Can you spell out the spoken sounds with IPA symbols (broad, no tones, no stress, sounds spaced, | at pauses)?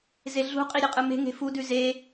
z e ɮ ṳ qʼ i ɾʲ ɯ qʼ ɯ m e̤ ŋ e̤ f u d ʉ z e